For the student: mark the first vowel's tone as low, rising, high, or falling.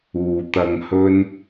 low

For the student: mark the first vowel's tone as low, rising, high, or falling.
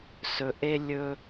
low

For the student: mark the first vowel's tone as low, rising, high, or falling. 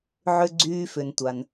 low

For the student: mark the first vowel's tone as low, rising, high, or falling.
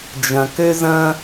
low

